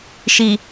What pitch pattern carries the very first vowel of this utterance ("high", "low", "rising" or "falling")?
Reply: low